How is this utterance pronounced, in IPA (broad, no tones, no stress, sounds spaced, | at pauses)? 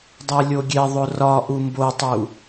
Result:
dˤ æ lʲ o ɡʲ e ðˤ o r ɒ ʔ u m b o tˤ u